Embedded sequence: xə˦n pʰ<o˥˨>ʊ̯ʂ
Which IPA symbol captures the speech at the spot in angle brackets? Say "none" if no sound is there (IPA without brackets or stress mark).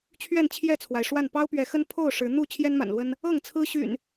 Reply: o˥˨